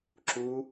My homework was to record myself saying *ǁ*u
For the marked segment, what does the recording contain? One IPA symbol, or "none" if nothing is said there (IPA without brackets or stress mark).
ǁ